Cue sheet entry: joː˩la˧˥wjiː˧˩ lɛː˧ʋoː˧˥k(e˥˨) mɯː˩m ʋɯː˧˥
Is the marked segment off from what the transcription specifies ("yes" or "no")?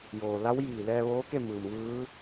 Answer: no